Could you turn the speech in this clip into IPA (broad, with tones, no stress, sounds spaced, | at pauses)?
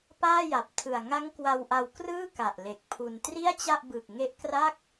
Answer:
p aː˥˩ j a˨˩ p̚ tʰ ɯ˨˩ a̯ ŋ a˦˥ ŋ k w a˧ w ʔ a˧ w k r ɯː˥˩ k a˨˩ ʔ l e˨˩ k̚ pʰ u˧ n t r i˥˩ a̯ t͡ɕ a˥˩ ʔ b ɯ˨˩ k̚ ŋ e˦˥ ʔ k r a˥˩ k̚